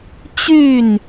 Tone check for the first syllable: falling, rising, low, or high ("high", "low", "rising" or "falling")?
falling